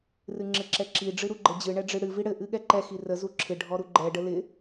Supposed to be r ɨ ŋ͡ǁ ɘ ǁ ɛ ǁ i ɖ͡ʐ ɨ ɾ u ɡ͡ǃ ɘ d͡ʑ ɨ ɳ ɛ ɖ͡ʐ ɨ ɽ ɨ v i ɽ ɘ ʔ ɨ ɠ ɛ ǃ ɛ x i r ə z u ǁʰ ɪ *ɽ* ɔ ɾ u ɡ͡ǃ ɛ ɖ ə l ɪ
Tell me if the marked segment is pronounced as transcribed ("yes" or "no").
no